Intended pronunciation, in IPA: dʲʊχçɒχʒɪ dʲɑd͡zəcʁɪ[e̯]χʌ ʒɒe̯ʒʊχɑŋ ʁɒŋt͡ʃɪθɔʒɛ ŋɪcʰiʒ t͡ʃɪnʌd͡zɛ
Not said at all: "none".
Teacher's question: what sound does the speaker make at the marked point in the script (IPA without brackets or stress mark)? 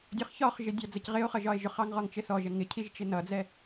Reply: o̯